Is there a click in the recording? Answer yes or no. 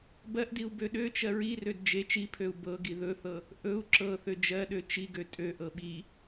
yes